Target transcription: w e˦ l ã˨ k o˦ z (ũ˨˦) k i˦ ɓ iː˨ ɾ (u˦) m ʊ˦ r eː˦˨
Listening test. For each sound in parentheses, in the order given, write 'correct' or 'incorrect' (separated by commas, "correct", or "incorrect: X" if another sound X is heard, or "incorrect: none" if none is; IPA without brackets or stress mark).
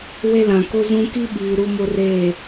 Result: incorrect: ũ˦, correct